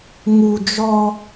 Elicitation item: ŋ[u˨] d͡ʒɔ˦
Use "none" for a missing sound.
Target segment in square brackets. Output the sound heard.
u˨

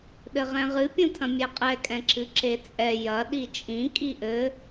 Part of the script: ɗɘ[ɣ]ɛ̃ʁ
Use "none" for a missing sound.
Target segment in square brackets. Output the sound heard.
ʁ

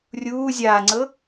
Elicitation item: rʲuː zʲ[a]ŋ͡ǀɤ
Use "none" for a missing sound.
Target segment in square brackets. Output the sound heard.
aː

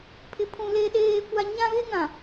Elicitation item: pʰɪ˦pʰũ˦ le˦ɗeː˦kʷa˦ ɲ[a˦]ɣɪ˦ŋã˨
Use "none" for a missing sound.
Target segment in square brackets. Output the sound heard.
ã˦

